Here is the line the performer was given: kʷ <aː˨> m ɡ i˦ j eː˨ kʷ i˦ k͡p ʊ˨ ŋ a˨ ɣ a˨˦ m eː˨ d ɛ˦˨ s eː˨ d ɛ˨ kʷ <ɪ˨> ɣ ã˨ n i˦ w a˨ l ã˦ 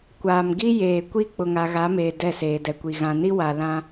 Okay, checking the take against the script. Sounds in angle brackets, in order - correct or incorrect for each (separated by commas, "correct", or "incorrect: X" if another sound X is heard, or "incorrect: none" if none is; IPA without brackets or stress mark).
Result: correct, incorrect: i˨